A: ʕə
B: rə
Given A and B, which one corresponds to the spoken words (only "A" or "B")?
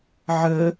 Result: A